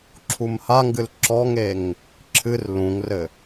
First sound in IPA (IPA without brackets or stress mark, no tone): ǁʰ